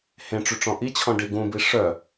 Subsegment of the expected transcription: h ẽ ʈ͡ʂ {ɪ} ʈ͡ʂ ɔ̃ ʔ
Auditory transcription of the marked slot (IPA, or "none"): y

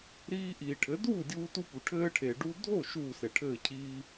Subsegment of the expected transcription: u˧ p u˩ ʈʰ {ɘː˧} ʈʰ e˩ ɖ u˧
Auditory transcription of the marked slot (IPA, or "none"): ɘː˧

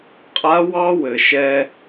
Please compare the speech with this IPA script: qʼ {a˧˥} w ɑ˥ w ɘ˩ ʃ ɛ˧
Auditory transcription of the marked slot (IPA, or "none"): a˧˥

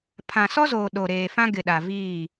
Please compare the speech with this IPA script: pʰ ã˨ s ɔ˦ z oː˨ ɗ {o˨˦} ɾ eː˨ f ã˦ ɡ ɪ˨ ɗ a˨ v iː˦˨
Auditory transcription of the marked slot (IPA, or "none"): o˨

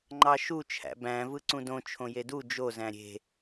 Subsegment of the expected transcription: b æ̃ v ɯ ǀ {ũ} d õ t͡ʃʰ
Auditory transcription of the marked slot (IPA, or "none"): ũ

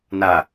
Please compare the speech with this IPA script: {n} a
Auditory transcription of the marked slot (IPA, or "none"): n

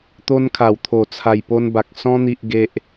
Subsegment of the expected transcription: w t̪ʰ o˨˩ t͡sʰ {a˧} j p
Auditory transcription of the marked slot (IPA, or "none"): a˨˩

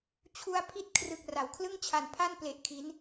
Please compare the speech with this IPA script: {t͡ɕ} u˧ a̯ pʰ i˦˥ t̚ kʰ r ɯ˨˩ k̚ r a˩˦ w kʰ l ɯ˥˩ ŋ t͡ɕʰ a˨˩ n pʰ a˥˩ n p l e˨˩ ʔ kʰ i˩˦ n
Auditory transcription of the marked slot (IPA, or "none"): t͡ɕʰ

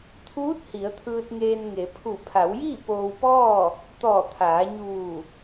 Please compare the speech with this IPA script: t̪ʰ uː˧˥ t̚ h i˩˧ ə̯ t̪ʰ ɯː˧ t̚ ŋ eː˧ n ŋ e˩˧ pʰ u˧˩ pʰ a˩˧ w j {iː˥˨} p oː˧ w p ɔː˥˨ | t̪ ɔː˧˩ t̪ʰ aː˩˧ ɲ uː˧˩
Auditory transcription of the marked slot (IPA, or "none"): iː˥˨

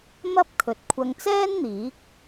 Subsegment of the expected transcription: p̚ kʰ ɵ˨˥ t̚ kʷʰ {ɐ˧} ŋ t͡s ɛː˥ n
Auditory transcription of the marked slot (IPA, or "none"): ɐ˧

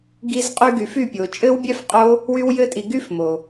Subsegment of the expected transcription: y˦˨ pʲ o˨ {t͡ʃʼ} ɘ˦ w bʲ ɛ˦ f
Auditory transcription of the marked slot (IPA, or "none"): t͡ʃʼ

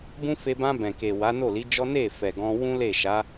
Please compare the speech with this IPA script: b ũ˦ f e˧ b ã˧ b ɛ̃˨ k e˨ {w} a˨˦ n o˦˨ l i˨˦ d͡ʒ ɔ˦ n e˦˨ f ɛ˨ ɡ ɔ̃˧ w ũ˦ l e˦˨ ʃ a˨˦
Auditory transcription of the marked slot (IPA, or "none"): w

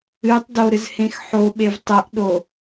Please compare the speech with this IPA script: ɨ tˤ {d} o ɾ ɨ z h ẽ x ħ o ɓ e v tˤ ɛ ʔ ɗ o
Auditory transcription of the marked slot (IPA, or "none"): d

